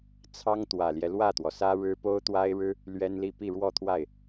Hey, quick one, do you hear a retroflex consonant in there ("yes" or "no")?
yes